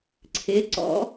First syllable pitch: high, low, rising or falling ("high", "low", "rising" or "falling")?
rising